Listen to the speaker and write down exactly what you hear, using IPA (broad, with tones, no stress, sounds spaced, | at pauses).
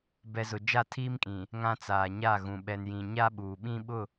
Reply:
b ɛ˨ z ʊ˨ d͡ʒ a˦˨ tʰ iː˦ m kʼ ĩ˨ | ŋ ã˨ t͡s aː˨ ɲ a˦˨ ɣ ũ˨ ɓ ɛ˨ n j ĩ˨ ɲ a˦ ɓ uː˨ ɓ ĩ˦ ɓ ʊ˦˨